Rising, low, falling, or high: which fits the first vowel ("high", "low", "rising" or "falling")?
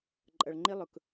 low